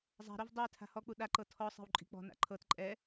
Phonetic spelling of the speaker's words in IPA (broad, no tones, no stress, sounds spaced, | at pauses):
zˤ a̤ ɾ o v dˤ e tʰ a̤ h ɔ k͡p u ɗ a ǃ ɤ tʰ ɔ sˤ e̤ w ǃʼ i̤ k͡p ɔ̤ n a̰ ǃʰ ɤ t ǃʼ ɛ